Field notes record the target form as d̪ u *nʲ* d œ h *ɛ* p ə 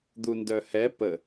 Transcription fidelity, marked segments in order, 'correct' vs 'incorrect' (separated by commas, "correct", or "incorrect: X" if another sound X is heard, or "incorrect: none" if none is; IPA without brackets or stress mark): incorrect: n, correct